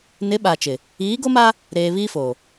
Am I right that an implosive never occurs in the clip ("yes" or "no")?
no